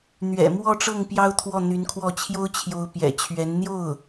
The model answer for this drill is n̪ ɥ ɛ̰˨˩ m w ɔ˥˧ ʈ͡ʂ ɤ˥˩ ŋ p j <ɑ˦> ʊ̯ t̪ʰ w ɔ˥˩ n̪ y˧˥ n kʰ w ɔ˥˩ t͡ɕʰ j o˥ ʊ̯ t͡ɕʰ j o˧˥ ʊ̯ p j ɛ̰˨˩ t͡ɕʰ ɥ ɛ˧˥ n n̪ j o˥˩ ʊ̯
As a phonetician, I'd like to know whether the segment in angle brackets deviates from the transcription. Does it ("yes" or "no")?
yes